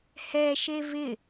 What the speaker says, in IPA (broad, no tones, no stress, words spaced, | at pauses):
hɛʃe vɪ